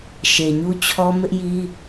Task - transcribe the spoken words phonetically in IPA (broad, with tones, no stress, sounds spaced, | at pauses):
ʃ e˨ ɲ u˦ t͡ɕʰ ɔ˦ m ɪ˦ ʔ j i˦